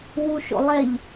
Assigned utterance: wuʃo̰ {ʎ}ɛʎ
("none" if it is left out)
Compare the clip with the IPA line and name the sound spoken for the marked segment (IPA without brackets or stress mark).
lˠ